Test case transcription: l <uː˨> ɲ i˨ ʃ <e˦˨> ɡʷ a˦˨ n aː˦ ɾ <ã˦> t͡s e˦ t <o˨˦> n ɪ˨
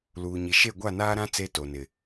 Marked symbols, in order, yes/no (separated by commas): yes, yes, yes, no